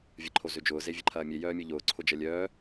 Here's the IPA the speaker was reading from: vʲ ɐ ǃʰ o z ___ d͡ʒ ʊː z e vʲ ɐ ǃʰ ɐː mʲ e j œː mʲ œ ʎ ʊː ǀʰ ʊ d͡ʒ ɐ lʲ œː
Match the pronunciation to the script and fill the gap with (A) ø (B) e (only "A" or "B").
A